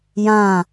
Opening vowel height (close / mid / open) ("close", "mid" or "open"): open